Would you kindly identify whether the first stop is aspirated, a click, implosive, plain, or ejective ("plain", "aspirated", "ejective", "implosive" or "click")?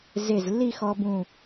plain